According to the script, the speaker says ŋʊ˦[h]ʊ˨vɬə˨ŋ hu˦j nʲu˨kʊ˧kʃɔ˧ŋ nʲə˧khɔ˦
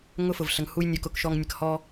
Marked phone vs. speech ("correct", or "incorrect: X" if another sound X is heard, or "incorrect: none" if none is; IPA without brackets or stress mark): incorrect: f